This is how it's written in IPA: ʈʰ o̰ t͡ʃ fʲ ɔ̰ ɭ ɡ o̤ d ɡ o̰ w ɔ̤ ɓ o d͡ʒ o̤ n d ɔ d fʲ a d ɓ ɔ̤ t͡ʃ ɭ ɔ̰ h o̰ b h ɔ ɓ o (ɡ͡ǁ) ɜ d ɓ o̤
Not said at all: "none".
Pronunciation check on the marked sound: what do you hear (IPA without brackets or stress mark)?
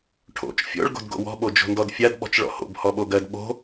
ɡ